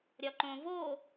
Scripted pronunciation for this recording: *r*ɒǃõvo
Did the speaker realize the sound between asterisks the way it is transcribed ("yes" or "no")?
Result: no